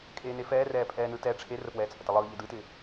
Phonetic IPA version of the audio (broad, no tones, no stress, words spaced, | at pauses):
kʼeːnefɛːrɛː pʼɛːnɯtɛ ʈ͡ʂʰerəpwɛː t͡sʼətəlˠɯː ʎɪdɯtɪː